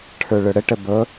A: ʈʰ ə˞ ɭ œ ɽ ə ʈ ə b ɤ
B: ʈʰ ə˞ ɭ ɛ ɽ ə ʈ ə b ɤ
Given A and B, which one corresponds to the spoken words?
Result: A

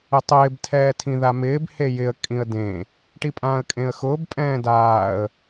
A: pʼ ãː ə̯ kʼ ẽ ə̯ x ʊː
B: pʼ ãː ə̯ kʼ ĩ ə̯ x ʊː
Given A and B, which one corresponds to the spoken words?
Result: A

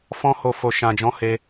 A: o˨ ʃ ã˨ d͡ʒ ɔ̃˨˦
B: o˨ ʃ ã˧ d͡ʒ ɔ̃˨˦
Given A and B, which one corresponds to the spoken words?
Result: A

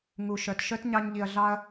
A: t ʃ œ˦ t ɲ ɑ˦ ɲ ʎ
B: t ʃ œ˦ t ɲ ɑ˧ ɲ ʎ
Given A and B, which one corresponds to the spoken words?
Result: B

